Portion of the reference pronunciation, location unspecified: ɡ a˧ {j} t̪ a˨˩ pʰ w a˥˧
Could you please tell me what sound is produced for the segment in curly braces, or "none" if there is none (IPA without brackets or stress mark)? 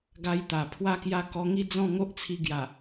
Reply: j